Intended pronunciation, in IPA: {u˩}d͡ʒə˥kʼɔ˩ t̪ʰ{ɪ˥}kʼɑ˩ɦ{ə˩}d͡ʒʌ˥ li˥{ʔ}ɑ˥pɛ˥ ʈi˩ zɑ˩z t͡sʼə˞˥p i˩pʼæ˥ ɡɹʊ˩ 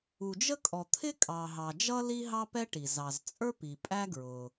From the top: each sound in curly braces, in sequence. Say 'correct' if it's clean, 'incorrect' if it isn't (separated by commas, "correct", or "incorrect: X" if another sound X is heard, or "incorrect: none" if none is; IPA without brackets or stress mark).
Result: correct, correct, incorrect: ɑ˩, incorrect: ɦ